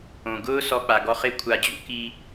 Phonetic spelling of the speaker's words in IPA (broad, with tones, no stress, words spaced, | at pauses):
õ˨ɡʊː˦ sɔ˧k͡pa˨ɡɔ˧ χɪ˦kʷʰa˧ d͡ʑṵ˦ki˧